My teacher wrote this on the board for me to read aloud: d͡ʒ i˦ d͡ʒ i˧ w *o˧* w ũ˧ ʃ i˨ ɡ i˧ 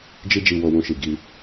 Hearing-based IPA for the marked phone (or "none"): o˧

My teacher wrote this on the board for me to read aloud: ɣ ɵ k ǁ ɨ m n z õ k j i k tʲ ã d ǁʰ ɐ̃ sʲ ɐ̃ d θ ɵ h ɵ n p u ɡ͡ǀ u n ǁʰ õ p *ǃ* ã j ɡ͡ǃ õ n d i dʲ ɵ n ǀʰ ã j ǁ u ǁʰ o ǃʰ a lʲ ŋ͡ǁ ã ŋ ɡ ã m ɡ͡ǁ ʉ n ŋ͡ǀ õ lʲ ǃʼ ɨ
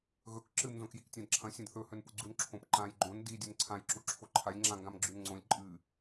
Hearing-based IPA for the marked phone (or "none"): ǃ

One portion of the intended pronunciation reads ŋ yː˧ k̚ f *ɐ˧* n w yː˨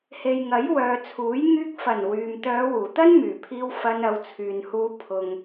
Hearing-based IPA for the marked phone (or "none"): ɐ˨˩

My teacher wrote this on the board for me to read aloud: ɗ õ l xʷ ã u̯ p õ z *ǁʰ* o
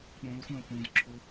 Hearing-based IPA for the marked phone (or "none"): ǁʰ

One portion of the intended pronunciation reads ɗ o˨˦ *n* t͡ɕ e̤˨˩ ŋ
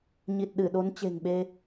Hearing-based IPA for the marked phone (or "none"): n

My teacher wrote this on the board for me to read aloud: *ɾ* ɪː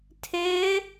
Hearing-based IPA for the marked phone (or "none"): tʰ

